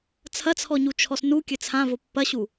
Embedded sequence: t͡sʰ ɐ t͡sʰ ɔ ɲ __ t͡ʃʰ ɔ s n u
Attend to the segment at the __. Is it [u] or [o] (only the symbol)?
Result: u